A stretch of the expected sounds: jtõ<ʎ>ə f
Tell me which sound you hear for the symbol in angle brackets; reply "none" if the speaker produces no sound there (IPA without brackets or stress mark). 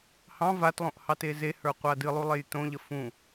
ʎ